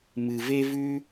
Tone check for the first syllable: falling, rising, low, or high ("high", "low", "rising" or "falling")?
low